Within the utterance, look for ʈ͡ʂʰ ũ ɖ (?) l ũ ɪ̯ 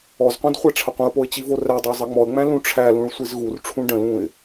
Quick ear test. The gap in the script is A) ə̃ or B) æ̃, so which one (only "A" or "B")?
A